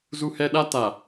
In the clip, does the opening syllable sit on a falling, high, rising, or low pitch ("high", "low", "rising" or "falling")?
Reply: high